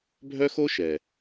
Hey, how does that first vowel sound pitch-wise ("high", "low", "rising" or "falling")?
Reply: high